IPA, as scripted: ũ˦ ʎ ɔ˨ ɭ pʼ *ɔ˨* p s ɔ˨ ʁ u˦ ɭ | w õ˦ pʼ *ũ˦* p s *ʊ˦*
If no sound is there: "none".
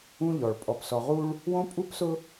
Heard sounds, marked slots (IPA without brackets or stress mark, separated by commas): ɔ˨, u˦, ʊ˦